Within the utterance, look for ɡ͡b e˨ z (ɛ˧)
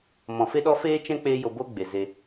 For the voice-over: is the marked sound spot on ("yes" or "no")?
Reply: no